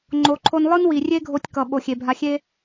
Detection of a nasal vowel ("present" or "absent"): absent